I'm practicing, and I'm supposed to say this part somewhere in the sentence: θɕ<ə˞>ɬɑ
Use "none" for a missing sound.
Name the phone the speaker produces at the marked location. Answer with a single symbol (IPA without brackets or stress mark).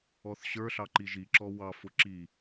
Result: ə˞